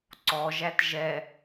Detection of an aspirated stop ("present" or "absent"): absent